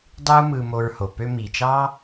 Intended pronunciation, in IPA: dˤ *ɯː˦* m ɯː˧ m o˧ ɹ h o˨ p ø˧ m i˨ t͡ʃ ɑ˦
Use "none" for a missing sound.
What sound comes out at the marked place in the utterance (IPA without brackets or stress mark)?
ɯː˦